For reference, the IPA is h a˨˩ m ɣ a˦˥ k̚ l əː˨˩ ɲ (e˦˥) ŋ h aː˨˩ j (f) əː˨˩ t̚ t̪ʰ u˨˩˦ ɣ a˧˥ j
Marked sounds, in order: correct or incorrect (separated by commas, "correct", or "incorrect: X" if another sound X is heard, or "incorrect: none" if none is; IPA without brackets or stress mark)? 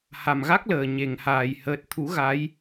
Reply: incorrect: e˨˩˨, incorrect: h